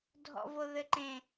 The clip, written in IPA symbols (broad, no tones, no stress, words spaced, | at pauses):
dʱɔ̰voðɘǃẽ